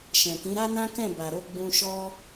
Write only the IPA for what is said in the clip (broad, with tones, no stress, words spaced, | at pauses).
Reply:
ʃɛ̃˨kĩ˨˦ ɾa˦nã˦kɛ̃˦˨ ba˨ɾo˧ ɡ͡bũ˧ʃɔ˦